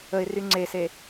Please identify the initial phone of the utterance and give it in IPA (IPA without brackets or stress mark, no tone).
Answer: ə